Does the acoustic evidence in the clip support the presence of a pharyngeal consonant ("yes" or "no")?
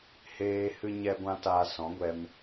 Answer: no